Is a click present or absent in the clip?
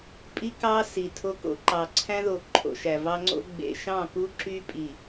present